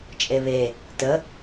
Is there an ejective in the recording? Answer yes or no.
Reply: yes